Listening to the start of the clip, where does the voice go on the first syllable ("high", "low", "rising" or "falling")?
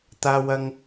high